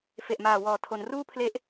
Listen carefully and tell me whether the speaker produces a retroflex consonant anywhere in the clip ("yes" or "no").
no